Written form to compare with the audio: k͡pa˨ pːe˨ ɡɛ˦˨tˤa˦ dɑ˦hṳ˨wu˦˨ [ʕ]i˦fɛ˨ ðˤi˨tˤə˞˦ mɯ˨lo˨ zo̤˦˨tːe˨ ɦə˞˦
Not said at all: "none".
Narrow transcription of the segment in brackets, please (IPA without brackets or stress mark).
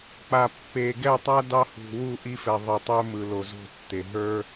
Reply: ʔ